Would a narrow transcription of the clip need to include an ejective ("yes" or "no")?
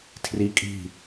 yes